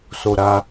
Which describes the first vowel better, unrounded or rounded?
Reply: rounded